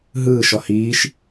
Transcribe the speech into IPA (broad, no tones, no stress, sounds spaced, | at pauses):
ɦ ɯː ʃ ɔ h iː ʃ